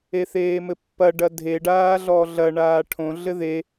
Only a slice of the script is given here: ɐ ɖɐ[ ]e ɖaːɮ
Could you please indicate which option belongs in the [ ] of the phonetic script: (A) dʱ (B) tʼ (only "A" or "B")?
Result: A